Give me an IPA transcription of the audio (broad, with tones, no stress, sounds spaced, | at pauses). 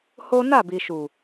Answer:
h o˦ n a˦˨ b i˨ ʃ u˨